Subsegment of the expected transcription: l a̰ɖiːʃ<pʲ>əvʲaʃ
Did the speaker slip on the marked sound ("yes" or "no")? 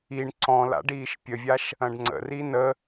no